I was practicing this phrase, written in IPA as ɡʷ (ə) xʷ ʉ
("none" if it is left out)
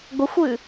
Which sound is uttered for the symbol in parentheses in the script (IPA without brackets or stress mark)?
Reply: ə